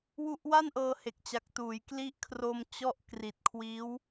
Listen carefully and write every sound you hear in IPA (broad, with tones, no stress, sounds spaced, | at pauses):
w u˦˥ ʔ w a˥˩ n ʔ ɤː˧ h e˨˩ k̚ t͡ɕ a˨˩ k̚ t uː˩˦ j k l i˦˥ ʔ kʰ r o˧ m t͡ɕ ɔ˥˩ ʔ k r i˨˩ t̚ kʰ w iː˦˥ w